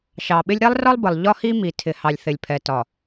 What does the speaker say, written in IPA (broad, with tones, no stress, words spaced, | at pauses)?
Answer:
ʃɑ˨ɓɪ˦lʲ ɾɛ˦lˠrɒ˦lˠbə˨lˠ ʎɒ˦hi˦ mi˨ tʰɪ˨ hɑ˨lʲθɪ˨lʲpʰɛ˨ tɒ˨